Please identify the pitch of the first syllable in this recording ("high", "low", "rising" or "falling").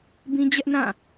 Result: high